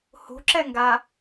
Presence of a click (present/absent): present